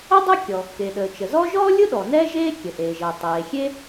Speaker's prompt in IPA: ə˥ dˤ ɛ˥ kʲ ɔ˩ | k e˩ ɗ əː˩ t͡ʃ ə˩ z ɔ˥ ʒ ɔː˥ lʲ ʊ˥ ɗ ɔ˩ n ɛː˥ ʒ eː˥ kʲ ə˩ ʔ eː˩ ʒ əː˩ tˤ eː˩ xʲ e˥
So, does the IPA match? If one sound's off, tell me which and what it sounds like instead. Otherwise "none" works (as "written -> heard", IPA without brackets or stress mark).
none